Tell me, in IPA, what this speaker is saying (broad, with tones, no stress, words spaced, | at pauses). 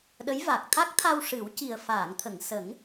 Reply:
ɗə˧˥jva˨˩k̚ t̪ʰa˦˥k̚t̪ʰa˧w ʂɨ˨˩˦wci˨˩ə̯ faː˨˩˨ŋt̪ʰə˨˩˨ŋsə˨˩˦ŋ